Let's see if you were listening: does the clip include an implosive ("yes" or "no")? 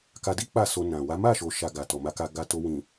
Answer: no